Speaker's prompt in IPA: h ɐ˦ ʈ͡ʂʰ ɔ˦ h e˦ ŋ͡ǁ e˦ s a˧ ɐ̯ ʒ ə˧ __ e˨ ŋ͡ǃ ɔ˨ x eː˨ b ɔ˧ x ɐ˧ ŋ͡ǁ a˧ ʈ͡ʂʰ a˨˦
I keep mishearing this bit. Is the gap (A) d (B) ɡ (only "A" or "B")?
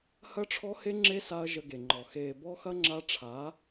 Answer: B